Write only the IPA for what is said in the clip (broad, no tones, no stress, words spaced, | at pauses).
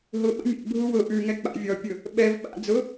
ɦʊ ɓə̰mʲɛ̰bʱu wʊ ʔʉŋɛ k͡pa̰vʲɔpʲʊ | ɓɛv ɓa̰ d͡zʊ